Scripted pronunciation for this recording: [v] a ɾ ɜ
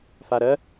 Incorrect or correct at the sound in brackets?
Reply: incorrect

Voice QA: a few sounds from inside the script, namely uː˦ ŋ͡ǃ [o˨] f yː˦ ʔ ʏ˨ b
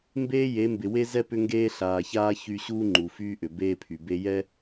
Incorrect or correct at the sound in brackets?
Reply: incorrect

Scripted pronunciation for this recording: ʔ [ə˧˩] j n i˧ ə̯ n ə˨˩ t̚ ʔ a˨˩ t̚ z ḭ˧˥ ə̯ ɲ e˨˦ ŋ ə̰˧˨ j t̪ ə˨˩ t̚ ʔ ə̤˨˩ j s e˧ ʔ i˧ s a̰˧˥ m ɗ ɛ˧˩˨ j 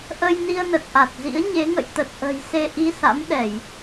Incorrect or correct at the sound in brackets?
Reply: incorrect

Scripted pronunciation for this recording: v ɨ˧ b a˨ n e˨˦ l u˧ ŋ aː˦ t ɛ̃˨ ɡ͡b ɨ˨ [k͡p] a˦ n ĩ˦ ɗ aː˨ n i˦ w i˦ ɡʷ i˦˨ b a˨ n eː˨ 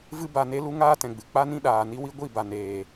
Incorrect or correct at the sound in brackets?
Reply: correct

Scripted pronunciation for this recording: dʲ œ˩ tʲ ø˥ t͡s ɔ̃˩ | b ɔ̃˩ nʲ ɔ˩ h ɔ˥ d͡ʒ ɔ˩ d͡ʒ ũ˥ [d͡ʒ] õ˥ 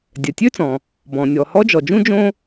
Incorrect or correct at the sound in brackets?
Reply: correct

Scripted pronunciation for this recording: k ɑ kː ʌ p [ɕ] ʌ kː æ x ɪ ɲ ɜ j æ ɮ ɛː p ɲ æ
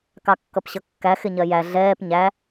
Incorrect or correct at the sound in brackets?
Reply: correct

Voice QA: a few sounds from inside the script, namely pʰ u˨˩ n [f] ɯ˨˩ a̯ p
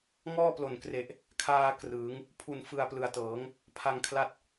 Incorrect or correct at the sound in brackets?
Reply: correct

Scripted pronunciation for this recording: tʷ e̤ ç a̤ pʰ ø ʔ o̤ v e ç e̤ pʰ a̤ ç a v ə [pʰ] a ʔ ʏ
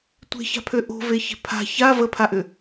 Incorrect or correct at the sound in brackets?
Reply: correct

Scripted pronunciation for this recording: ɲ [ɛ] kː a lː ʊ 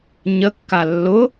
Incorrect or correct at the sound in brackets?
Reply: incorrect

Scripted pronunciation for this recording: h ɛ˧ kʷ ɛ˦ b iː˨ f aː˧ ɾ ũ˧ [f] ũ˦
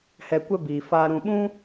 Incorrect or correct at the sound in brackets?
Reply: incorrect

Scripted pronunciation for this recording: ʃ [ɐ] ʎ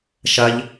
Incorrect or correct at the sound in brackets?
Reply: correct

